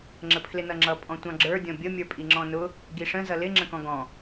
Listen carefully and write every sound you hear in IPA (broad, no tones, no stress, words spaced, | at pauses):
ŋ͡ǁəpʰlɪnʌŋ͡ǁʌ pʼɔ̃tʷɑ̃ɡ͡ǁə˞ dʲɔ̃bʲə mʲə˞pʼiŋ͡ǁɔ̃nʊ | ɡiʂə̃ zʌlɪ ŋ͡ǁə̃kɔ̃ɡɔ̃